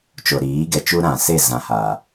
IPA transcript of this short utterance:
t͡ʃo˨ɾiː˨˦ɡɛ˨ t͡ʃu˦ɾã˨se˦˨ zã˨ haː˨

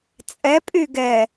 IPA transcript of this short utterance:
t͡sʼɛpʼy ɡɛ

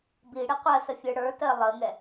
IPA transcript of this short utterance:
bi ɽiqʷɜsəfʲə˞ ɽə˞tɜ lˠəŋɛ

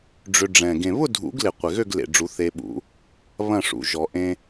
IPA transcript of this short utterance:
ɖ͡ʐʏ˧ɖ͡ʐɛ̃˨˩ ɡẽ˨˩βʊ˥˨dʱṵ˨˩˦ɡlɪ˨˩ qʷɪ˨˩ɣø˥˨ɡlḛ˨˩ɖ͡ʐu˨˩˦ θe˧ɓṵ˨˩˦ | βɐ̃˥˨ʂṵ˨˩ ʒɔ˨˩˦ʔẽ˧

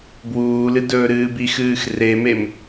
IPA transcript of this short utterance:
bwuːlɨdɵːɾɨːb ixɨːx remem

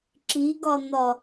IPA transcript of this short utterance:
ǁiɡɒn̪ɒ

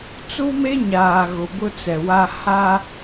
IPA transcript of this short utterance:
t͡su˦me˦ɲaː˨ ɣʊ˨bʊ˦ t͡sɛ˨wa˦ ha˦

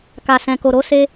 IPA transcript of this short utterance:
ka˨sɛ̃˨ko˨ ɾo˨˦se˧

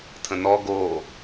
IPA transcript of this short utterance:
tʰə̃nɔ ɡo

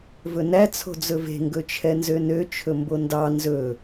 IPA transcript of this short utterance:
vɵnæ t͡sʰo̤d͡zɵve̤ ŋɡɵt͡ʃʰɛnzønø t͡ʃʰɵmbondɑ nzɵ

